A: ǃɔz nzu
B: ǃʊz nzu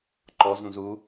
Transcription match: A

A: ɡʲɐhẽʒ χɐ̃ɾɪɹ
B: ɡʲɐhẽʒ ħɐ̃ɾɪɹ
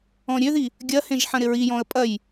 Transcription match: B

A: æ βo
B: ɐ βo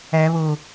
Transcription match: A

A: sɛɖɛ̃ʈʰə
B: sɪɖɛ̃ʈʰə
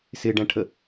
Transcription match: B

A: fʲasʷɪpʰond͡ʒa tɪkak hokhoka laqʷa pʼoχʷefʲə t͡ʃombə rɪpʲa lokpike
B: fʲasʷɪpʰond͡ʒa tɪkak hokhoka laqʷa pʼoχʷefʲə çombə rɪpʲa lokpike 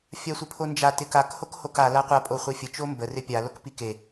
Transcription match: A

